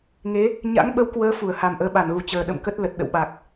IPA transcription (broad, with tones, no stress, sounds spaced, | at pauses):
ŋ e˨˦ | ɲ a̰˧˥ ŋ ɓ ə˧ w k w əː˨˦ f u˧˩ ə̯ h a˨˩ m ʔ əː˨˦ ɓ a˧˩ n ɣ u˨˩ t͡ɕ əː˨˩ ɗ ə̰˧˨ m k ə˦˥ t̚ l ə˨˩ t̚ ɗ ə̰˧˨ w ɓ a˨˩ k̚